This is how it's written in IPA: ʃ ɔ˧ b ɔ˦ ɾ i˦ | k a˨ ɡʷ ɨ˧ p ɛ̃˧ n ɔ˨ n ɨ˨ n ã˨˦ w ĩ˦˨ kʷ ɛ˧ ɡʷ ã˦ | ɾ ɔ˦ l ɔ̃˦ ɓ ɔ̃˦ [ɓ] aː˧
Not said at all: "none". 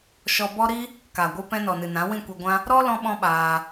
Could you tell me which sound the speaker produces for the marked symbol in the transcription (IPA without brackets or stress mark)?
ɓ